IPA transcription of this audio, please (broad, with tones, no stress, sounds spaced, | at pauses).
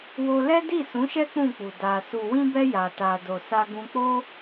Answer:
w o˧ l ɛ˦ d i˦˨ s ũ˨˦ ʃ ɛ˦ k͡p ũ˦˨ k͡p u˨ d a˨ s u˨ w ĩ˧ b ɛ˧ j a˨ t a˨ d o˨ s a˧ ɡ ũ˧ k͡p o˦